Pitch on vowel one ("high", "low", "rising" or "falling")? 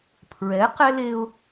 rising